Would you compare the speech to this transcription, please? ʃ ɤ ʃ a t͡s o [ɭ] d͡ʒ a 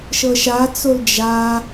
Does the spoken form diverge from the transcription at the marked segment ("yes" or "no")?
yes